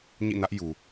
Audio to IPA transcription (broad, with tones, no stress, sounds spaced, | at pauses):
ɲ ḭ˦˨ n ä˦ ʔ j u˨